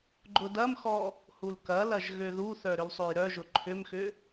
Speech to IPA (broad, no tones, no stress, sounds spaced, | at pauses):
ɡ͡ǃ ʊ d ɐ m x ɔ | h u l k ɐ l ɐ ʒ ɣ ø ð u θ œ ɾ ʏ l sˤ ø j ɾ œ ʒ ʊ ǃʰ ʏ m x ʏ